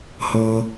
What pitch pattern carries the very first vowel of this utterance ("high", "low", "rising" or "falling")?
low